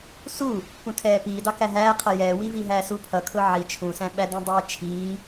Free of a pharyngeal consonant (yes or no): no